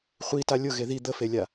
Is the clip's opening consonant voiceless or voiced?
voiceless